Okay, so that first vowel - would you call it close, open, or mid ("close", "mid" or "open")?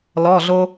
mid